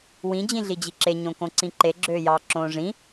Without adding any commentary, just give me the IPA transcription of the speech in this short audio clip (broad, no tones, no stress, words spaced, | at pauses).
wĩ d͡ʑĩɮid͡ʑiǁe ɲõkõǀĩǃe ɡ͡ǁøːjɑ ǁõːʐĩ